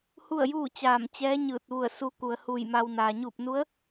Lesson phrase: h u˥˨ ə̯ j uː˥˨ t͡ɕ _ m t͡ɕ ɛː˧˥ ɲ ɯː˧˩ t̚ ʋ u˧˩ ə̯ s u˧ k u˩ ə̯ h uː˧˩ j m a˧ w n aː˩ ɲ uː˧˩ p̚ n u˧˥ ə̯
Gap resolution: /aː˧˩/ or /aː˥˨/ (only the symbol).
aː˧˩